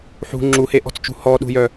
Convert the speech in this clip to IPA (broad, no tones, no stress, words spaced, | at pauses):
ħṳ ŋ͡ǁuheʔɔ̤t͡st͡ʃṳ hɔɗṳjœ